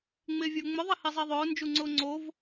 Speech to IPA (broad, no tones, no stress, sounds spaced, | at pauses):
ŋ͡m ɪː vʲ ʊː ŋ͡m ʊ ðˤ i h i zˤ i ðˤ ʊː n d͡ʒ u ŋ͡ǀ ʊː ŋ͡ǀ o v